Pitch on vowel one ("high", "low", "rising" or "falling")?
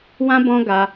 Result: high